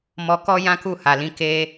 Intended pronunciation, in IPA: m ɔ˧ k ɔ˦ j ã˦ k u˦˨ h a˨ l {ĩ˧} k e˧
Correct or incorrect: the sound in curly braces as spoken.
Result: correct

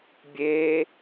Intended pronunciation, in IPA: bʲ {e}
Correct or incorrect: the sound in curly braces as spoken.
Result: correct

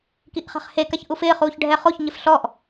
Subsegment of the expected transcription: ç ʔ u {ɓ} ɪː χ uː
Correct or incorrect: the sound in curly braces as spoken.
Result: incorrect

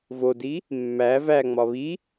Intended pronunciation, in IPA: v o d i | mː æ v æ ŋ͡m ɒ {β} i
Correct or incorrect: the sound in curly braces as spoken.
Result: correct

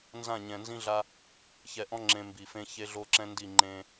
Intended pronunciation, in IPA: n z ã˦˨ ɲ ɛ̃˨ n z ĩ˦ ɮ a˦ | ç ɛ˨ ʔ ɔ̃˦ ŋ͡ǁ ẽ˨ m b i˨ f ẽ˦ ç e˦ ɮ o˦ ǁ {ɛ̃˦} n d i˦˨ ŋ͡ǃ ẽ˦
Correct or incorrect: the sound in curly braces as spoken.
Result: correct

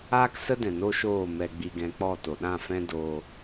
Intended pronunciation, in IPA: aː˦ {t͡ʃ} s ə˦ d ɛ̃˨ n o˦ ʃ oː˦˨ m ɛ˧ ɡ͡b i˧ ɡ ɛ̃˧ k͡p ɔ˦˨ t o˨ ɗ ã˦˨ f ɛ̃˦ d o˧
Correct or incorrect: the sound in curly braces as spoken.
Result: incorrect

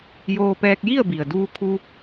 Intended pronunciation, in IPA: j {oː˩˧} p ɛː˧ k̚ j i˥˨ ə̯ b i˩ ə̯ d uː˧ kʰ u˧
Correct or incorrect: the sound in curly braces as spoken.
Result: incorrect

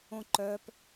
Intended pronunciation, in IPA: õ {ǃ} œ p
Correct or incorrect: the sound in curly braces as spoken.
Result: correct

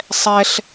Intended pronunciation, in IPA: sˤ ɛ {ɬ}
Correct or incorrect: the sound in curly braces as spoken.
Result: correct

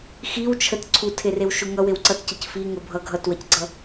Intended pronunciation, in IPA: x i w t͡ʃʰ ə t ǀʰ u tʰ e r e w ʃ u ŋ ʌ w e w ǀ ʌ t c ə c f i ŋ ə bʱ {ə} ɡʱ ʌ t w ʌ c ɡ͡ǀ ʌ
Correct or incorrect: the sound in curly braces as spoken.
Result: incorrect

